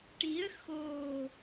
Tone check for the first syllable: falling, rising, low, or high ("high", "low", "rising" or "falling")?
rising